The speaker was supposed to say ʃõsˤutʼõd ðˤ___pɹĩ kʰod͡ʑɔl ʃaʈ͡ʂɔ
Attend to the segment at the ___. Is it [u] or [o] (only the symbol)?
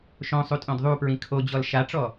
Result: u